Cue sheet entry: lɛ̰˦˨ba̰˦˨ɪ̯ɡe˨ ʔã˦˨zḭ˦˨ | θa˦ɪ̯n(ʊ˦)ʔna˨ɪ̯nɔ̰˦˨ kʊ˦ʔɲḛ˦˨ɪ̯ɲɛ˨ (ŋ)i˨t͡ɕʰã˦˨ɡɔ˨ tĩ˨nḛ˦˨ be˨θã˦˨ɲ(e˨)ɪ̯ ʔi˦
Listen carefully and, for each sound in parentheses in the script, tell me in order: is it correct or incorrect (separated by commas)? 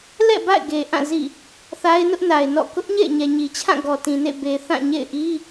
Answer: correct, incorrect, incorrect